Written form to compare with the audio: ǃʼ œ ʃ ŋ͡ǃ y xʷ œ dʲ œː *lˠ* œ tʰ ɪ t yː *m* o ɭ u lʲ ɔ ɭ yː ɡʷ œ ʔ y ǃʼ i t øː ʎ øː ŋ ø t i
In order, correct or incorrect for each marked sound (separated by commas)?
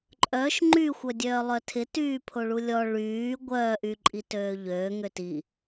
correct, incorrect